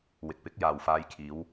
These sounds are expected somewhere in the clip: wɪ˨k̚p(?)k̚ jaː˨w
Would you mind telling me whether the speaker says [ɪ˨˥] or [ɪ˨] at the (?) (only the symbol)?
ɪ˨˥